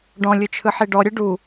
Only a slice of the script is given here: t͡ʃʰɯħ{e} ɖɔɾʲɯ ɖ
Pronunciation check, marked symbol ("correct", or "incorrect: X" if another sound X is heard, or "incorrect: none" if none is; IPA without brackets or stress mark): incorrect: i